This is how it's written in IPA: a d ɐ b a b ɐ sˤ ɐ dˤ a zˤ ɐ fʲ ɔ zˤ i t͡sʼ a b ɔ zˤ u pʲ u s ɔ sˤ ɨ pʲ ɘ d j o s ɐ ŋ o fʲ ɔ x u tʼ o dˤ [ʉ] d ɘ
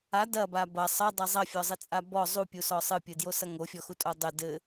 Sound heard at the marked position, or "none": ɘ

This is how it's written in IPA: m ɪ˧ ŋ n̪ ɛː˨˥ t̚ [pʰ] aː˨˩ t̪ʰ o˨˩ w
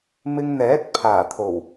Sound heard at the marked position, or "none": pʰ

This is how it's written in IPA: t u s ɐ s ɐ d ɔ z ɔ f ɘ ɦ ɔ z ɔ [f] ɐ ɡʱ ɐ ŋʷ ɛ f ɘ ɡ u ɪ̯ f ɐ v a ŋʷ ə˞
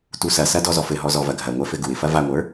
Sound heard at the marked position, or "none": v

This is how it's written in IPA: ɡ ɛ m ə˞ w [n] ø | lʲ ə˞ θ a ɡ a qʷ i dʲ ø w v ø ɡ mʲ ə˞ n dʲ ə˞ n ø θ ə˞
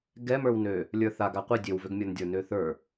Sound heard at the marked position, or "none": n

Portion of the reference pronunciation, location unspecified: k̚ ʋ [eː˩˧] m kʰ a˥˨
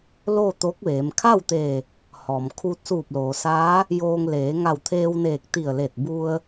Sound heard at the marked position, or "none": eː˩˧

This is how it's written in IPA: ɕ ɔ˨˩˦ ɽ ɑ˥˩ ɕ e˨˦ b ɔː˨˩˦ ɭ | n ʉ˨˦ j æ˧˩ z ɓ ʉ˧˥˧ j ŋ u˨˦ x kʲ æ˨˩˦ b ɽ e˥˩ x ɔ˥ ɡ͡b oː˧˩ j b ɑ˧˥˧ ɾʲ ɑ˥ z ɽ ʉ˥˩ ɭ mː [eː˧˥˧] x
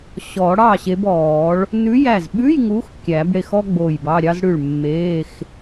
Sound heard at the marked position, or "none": eː˧˥˧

